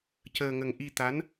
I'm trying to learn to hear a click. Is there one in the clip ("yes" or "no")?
no